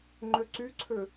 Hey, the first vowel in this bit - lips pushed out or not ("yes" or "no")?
yes